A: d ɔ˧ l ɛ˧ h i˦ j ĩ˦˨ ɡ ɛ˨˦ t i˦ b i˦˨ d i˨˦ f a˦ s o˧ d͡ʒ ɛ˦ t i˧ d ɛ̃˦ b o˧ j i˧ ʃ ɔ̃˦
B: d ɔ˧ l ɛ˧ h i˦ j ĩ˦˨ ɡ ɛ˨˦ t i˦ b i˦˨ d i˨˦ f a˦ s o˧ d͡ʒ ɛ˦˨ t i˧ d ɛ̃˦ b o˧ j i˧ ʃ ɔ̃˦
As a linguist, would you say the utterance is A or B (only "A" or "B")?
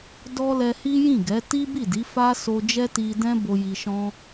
A